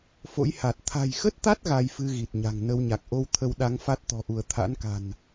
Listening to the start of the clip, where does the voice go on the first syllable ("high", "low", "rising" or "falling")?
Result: rising